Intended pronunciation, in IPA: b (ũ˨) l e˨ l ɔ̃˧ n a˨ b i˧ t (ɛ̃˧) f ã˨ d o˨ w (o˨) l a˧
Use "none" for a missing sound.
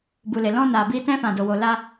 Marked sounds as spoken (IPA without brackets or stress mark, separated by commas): u˨, ɛ̃˧, o˨